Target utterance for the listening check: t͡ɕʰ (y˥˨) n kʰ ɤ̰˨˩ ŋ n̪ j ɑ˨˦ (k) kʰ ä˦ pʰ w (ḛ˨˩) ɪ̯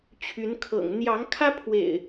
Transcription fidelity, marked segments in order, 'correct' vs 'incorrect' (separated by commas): incorrect, incorrect, correct